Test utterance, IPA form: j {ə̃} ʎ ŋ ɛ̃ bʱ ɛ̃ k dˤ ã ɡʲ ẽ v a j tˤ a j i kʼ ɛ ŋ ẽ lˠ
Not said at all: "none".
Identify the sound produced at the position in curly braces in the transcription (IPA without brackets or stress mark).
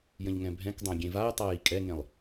ə̃